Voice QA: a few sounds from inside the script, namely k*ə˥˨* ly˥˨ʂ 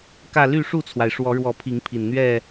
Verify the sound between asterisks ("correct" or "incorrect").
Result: incorrect